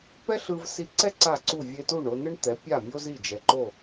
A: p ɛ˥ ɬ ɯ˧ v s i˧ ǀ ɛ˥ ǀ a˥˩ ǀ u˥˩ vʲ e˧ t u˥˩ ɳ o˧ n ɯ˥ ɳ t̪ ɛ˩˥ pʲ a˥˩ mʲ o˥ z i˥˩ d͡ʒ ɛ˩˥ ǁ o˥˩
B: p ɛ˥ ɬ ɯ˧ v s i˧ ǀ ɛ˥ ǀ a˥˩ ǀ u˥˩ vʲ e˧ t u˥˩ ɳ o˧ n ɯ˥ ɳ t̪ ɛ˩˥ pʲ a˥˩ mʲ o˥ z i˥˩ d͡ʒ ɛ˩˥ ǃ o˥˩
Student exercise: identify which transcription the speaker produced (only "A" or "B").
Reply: B